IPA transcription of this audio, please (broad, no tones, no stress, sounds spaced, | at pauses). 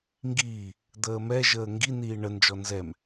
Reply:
ŋ ɡ iː | d̪ əː m ɛ ʒ əː ŋ ɡ i n iː ɳ ə n d͡ʒ ɔ n z ɛ m